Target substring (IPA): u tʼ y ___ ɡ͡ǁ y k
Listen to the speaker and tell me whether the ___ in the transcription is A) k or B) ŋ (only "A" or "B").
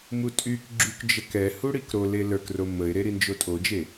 A